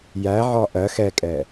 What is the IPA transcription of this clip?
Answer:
j æ ʕ ɒ ʔ ɜ x ɛ kʼ ɛ

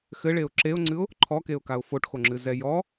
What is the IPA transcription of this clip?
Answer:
x ɘ ɭ e ʊ̯ ǁ e ʊ̯ ŋ͡ǀ ɨ ʊ̯ | ǃʰ ɔ k e ʊ̯ k a ʊ̯ f o ʈ x o ŋ͡ǁ ɨ z ɛ j ɔ

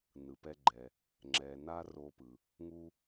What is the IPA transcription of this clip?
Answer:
n ɯ˩ p ɛ˧ ɡ͡ǃ ɛ˩ | ŋ͡ǁ ɛ˩ n a˧ r o˧ p ɯ˩ | ŋ u˧

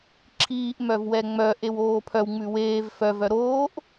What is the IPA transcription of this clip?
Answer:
ǁʰ iː ʔ m œ v w ɛ ŋ͡m œ ʔ e w oː pʰ œ w ŋ͡m ʉ w eː v f œ v œ ɾ oː ʔ

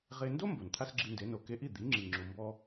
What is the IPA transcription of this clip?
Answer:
ʁ e˧ n d o˥ m b o˩ n t̪ʰ a˥ s ɡ͡ǁ i˧ n d e˩˥ n o˩ k e˧ ʔ i˥˩ d̪ i˩˥ ŋ͡ǁ i˩ ŋ͡ǁ u˩ m b ɔ˧

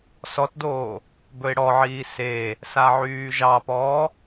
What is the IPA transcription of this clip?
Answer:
s ɔ t d oː | b ɵ ɪ̯ ɽ ɔ ʕ iː s e | s a ʕ yː ʒ ɑ p ɔː

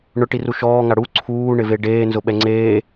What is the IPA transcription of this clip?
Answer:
ɳ ʊ ʈ i r u ʃ ɔː ŋ a ɽ u ǀʰ uː ɳ ɪ v e ɖ eː n z ʊ ɓ ɛ ŋ͡ǀ eː

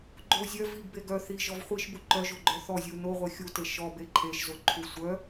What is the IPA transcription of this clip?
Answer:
ɡ͡ǃ o zʲ œ v i ɡ b e ɡ œ θ i ʒ ɔ v χʷ i ʃ b u ǃ œ ʒ o ɡ͡ǃ œ θ ɔ zʲ u n o ʁʷ e xʲ u t e ʃ ɔ b e ǃʰ e ʃ z o ǃʰ u sʷ œ

